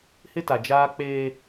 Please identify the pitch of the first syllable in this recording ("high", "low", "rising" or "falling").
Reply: high